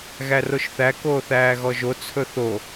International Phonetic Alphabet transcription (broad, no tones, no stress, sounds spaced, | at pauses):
ɣ æ r o ʃ θ æ k oː θ æː ɣ ɔ ʒ o t͡sʰ ɵ θ o